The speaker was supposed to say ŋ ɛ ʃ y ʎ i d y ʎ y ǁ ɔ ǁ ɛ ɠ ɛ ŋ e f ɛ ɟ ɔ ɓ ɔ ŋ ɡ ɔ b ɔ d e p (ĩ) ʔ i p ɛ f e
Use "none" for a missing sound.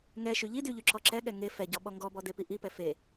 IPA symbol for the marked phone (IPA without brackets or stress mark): i